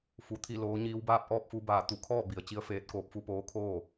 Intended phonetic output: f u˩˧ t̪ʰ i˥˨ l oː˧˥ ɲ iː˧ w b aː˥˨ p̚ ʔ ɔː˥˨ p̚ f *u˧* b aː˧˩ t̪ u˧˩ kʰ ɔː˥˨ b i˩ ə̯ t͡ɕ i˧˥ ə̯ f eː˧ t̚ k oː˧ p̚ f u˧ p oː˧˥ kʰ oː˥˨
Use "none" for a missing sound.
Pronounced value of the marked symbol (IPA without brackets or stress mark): u˧